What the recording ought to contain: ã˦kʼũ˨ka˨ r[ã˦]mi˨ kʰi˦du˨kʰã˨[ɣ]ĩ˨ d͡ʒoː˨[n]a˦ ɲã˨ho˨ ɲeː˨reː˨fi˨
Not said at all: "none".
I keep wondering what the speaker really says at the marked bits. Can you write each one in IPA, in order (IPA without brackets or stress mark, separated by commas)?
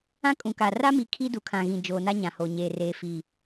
a˦, ɣ, n